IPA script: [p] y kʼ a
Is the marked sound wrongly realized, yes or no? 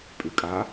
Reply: yes